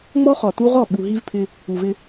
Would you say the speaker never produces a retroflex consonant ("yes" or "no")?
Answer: yes